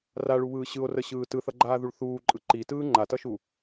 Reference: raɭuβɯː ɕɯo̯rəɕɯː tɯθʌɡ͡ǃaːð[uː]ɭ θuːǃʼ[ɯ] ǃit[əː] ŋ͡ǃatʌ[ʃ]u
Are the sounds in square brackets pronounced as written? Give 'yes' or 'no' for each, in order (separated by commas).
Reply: no, yes, no, yes